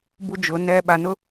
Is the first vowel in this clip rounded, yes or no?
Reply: yes